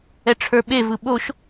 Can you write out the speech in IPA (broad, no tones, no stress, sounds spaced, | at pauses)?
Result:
ɛ ʈ͡ʂʰ ə˞ ɓ e v ɯ ɓ o ʃ